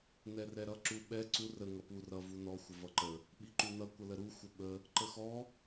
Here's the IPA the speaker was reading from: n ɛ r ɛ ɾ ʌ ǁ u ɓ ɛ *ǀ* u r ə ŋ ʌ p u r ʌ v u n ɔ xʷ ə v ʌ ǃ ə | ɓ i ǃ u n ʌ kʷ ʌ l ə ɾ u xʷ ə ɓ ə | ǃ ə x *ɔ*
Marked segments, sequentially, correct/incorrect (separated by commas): correct, correct